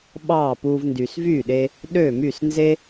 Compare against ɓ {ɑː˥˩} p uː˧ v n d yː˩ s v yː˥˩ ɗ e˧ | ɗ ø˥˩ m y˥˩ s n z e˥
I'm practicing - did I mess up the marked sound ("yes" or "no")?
no